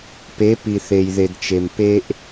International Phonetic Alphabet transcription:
pe˨˦pi˨ θe˨jðe˨dt͡ʃe˨m pe˦ʔ

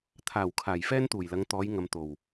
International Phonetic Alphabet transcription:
t̪ʰaː˨˩w kʰaː˨˩jfɛː˥nt̪uː˨˩jlɐ˨˧ŋ t̪ɔː˨˧j ŋɐ˨m t̪o˨˩w

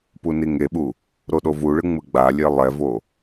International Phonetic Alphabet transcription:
puniŋeɓu | ɾoɗovuɭɯ ŋ͡mɯɡ͡balʲe lˠɛvo

